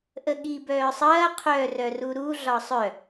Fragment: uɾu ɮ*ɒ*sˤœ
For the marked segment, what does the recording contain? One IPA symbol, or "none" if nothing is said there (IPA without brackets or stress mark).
ɒ